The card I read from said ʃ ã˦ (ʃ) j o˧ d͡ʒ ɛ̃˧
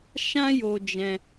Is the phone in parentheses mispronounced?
yes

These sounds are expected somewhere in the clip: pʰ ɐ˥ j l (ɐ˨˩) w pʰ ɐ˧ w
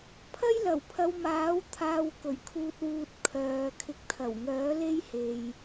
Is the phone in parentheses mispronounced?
no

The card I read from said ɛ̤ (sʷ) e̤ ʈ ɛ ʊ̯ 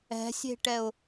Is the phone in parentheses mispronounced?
yes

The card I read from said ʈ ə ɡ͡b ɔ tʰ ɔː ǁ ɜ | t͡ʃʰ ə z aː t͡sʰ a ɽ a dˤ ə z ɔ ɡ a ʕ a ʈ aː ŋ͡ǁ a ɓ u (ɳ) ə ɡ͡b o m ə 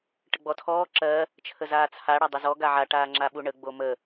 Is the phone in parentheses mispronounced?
no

